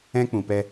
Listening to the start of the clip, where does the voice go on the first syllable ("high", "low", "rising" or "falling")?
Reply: high